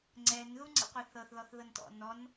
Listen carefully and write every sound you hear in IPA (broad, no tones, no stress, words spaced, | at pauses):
ŋ͡ǀɛn ðuŋ͡ǀḭqʷɛθɤθ ðɔθðɤntɔ̰nɔn